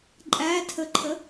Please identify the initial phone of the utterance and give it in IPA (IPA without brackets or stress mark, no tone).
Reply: ǃʼ